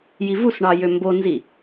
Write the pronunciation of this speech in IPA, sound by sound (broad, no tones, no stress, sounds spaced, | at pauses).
j i v u s ɳ ɑ j ø m b o n z i